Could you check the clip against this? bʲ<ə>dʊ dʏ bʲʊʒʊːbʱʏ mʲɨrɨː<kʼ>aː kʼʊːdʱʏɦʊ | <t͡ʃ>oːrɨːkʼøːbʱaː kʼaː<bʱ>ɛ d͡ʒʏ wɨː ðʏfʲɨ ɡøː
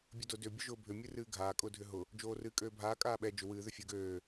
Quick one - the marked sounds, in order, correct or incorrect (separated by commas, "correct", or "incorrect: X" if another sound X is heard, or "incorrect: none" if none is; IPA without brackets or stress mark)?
correct, incorrect: ɡʱ, incorrect: d͡ʒ, incorrect: ɓ